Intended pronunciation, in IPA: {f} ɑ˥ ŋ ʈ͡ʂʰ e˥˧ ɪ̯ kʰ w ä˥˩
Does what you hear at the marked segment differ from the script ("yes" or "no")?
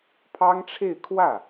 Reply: yes